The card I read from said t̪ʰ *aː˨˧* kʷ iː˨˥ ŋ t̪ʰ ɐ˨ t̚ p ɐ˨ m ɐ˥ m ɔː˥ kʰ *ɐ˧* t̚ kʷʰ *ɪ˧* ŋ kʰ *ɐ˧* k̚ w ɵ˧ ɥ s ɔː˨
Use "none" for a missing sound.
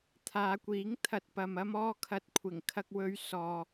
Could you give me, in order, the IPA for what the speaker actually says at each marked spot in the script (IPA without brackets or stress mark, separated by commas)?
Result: aː˨˧, ɐ˧, ɪ˨˩, ɐ˧